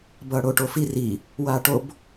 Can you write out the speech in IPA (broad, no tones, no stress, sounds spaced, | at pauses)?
b ʌː ɽ o ʈ o f i r i | w aː ʈ o b